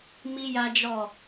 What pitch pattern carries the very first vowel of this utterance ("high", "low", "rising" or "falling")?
high